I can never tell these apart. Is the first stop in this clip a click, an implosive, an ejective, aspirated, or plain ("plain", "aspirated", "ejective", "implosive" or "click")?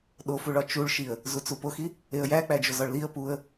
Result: implosive